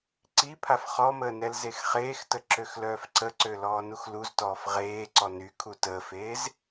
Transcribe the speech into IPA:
ǀ i pʰ a f χ ɔ m əː n ɛ l z e x χ eː x t ə ǁ ø x l œː f ǀ ə ǀ ø l ɔː n u x l u z t ɔː f ʁ eː ǀ ɔ n y kʰ u t əː f eː z

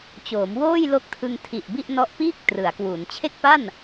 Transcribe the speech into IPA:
t͡ɕ oː˩˦ m w oː˥˩ j l o˦˥ k̚ tʰ ɯ˧ ŋ tʰ i˨˩ ʔ b i˥˩ ʔ n ɔ˥˩ ʔ p iː˥˩ k̚ t r ɯ˩˦ a̯ k w u˩˦ n t͡ɕʰ e˥˩ k̚ p a˥˩ n

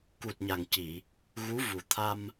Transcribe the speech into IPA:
k u˨˩ t̚ ɲ a˨˩ ŋ c i˨˩˨ | ɣ u˧˥ v u˨˩ t̪ʰ a˧ m

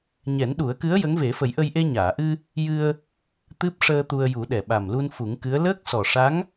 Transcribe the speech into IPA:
ɲ ɛ˨˩˦ n ɗ u˨˩˦ ə̯ k ɨ˧˥ ə̯ j ə˧˥ ŋ v e˨˩˦ f ə˨˩˦ j ʔ ə˧ j ʔ e˧ ɲ aː˨˩˨ ʔ ɨ˧ | j ɨ˧ ə̯ | t̪ ɨ˦˥ p̚ ʂ əː˧ t̪ u˧ ə̯ j u˨˩˦ ɗ ɛ˨˩ ɓ a˨˩ m l u˧ n f u˨˩˦ ŋ k ɨ˧˥ ə̯ l əː˦˥ k̚ s ɔ˨˩ ʂ a˧˥ ŋ

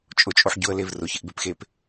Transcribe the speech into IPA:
t͡ʃʼ ʊ t͡ʃʼ o ħ ɟ ʊ ə̯ l e v r ʊ ç ɪ ʔ b e p x e p

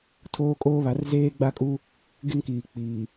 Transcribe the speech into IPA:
tʰ oː˦ kʼ oː˦ β a˨˦ r z eː˦ ɡ͡b a˦ kʼ u˦ | ɡ ɪ˦ n k iː˨ k͡p iː˨

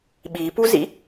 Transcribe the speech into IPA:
ɓ i p u z ḭ

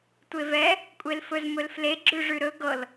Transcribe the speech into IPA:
tʷ e v ɛ | kʷʼ e l f ɵ z m ɵ l f l e ɡ͡ǁ ʉ ʐ ʉ ɾ ɵ ɡ ɤ l

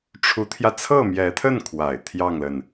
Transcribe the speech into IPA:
ʈ͡ʂʰ u˧˥ t̪ʰ j ä˧ t͡sʰ ɤ˥˩ m j ɛ˧˥ t̪ʰ ə˥˩ n kʰ w a˨˩ ɪ̯ t̪ʰ j ɑ˥˩ ŋ l ə˩ n

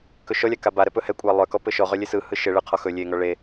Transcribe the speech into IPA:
k ɵ ʃ ɔ lʲ a k a b a ɾ ɛ p ɵ h ɛ kʷʼ a lˠ œ k ɔ p ɘ ʃ ɔ ʁ œ lʲ e s ɯ h ɯ ʃ ɘ ɭ ɯ qʰ ɔ x ɵ lʲ e ŋ ɔ ɭ e

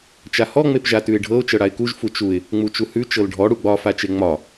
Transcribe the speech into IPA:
t͡ʃ a h ɔ ŋ͡m e p ʒ a t ʉ ɪ̯ ɖʱ ɤ ʊ̯ t͡ʃ ɤ ɽ a ɪ̯ k u ʒ f u t͡ʃ u ɪ̯ | ŋ͡m u t͡ʃ u h ʉ t͡ʃ ɤ l ɖʱ ɔ ɽ u ɡ͡b ɒ f a t͡ʃ e ŋ͡m ɒ

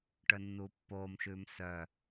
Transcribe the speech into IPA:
ʈ œ nː uː pː oː m ʃ ʉː m s œ

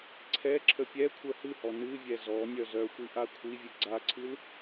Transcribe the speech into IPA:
ǀʰ ɛ ǁʰ ə pʲ ɛ kʷʰ œ h ɨ h ɔ n ɨ vʲ ɛ z ɔ nʲ œ z œ xʷ i ʔ a kʷʰ i vʲ ɨ ɡ͡ǀ a ǀʰ ɨ l

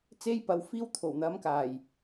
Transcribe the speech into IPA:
t͡s e˥ j p ɐ˨˧ w f iː˥ w t̪ʰ o˨˩ w n̪ ɐ˨˥ m k aː˨˩ j

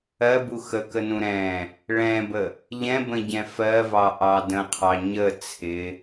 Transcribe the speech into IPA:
ɜ b u x ə k ə n ũ ɾ ɛ̃ | ɭ ɛ̃ b ə | ʎ ɛ̃ b ə̃ ɟ ɛ̃ f ɜ v ɑ ʔ ɑ d ə̃ qʰ ɑ ɲ ə t͡sʰ ɪ

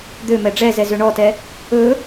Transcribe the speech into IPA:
d̪ ø m ɛ ɖ͡ʐ ɛ z ɛ z ø ɳ ɔ t ɛ | ɵ

